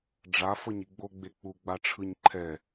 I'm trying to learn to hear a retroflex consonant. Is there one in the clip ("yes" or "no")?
yes